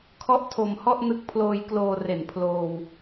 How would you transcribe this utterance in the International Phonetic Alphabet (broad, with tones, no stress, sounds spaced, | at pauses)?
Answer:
kʰ ɔ˥˩ ʔ tʰ o˧ m h ɔ˥˩ ʔ n ɯ˦˥ k̚ pʰ l oː˧ j k l oː˧ r e˨˩ n pʰ l oː˧ w